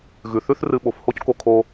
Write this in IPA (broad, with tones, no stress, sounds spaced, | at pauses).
ɣ ʉ˩ θ ʉ˥ θ r ɨ˧ ɓ o˩ f h o˥ c k o˧ kʰ o˧